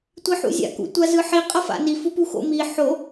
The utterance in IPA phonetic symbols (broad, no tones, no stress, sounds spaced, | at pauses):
tʷ i ħ ṵ zʲ a̰ k ṵ tʷ a z ɯ ħ i qʼ ʌ f a̰ n i f u p u x o̰ m i ħ o